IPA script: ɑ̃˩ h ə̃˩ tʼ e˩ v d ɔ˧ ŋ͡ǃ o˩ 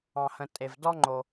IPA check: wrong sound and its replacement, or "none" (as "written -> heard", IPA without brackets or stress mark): none